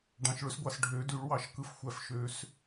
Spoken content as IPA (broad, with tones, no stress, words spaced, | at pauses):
ɖɑ̃˨ʃɭø˨˦sɡʷɑ˨s ɖʱø˨˩˦dy˨˩˦ɭwɑ˨˩˦ʃkɯ˨˦f xʷæ˨fʃø˨˦s